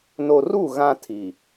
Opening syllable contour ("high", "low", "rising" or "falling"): low